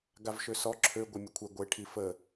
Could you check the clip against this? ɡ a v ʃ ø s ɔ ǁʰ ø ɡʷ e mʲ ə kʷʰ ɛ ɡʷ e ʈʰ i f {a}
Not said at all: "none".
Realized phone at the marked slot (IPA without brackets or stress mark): ə